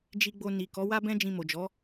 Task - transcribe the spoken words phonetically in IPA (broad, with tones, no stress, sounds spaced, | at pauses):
d͡ʒ i˧ ɡ͡b o˧ n i˨ k ɔ˨˦ w a˦ b ɛ̃˦ d͡ʒ ĩ˧ m o˨ d͡ʒ ɔ˨˦